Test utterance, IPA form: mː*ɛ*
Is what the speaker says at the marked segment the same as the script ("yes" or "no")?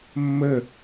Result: no